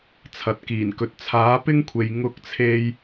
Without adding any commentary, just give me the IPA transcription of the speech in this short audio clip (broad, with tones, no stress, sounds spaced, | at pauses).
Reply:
t͡sʰ ɐ˨ t̚ k iː˨˩ n k ɵ˨ t̚ t͡sʰ aː˨˥ p ɪ˥ ŋ kʷʰ e˨ j ŋ ʊ˧ k̚ t͡sʰ e˧ j